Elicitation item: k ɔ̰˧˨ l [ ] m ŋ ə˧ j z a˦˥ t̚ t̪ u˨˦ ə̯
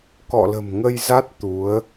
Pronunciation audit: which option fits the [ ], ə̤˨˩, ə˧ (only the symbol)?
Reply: ə̤˨˩